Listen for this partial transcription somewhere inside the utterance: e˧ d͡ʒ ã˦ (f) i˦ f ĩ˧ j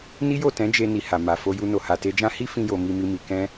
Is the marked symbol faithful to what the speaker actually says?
no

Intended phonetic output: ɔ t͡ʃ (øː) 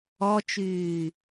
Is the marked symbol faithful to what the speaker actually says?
no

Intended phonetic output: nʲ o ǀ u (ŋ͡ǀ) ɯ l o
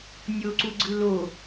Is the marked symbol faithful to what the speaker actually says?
no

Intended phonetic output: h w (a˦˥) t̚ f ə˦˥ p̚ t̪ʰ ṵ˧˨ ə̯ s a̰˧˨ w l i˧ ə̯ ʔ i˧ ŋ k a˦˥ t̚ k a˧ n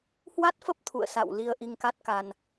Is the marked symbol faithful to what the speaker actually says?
yes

